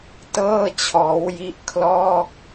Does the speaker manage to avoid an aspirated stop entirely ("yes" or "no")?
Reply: no